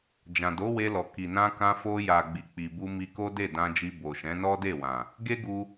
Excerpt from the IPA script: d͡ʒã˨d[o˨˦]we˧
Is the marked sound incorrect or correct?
correct